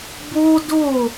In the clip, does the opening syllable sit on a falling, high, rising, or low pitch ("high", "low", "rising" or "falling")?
high